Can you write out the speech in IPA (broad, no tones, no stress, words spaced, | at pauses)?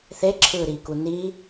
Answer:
θeǁʰɯːɾiːku niː